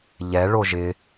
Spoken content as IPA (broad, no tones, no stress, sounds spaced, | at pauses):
ʎ ɛ ɭ o ʒ ɪ